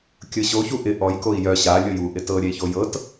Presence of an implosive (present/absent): absent